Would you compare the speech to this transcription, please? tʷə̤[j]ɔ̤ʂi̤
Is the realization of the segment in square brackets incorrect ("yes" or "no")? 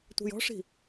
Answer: no